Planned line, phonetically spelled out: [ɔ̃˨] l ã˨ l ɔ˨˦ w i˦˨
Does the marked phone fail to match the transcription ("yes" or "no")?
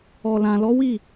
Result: yes